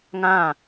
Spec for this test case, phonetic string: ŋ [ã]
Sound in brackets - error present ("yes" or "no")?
no